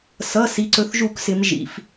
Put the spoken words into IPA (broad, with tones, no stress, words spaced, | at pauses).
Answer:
sʌ˩˧˩ si˩˧ǀɵ˩˧θʒu˧˩˧ksɪ˩˧m ʒḭ˩˧˩f